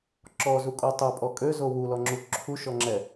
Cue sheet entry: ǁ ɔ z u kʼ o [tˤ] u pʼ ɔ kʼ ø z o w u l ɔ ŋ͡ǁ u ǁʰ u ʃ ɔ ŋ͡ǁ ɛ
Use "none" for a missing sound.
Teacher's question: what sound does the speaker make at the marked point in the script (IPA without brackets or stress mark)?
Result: tˤ